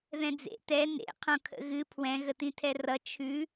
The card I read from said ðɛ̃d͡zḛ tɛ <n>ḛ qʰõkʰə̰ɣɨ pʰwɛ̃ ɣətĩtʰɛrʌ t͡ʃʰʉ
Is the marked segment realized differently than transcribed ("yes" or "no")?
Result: no